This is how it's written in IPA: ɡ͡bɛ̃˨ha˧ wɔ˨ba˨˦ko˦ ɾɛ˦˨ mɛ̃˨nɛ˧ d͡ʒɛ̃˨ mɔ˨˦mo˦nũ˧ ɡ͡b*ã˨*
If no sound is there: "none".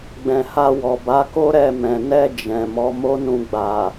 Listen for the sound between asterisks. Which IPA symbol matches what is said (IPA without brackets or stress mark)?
a˨